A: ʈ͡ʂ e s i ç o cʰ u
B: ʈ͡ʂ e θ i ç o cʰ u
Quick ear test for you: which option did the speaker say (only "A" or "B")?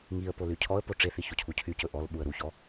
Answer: B